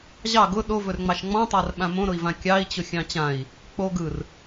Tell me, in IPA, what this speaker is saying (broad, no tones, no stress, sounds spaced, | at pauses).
ʑ ɑ ɡ ʊ ɗ o v ɵ r ŋ͡m ɑ ʃ ŋ͡m ɔ̃ tˤ a r ɓ ã m õ ɾ ʊ i̯ v ã kʲ ɑ i̯ t͡ɕ ʊ xʲ ɑ̃ t͡ɕ ã i̯ | k͡p o ɡ ɯ r